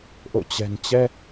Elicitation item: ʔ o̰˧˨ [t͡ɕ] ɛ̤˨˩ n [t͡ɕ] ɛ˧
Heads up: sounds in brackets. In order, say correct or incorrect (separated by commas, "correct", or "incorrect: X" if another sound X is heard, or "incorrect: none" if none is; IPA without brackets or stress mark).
correct, correct